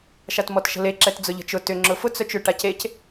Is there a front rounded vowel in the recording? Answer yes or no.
yes